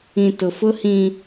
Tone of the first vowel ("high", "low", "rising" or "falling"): low